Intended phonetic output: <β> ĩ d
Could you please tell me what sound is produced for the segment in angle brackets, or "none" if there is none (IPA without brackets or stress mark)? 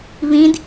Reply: β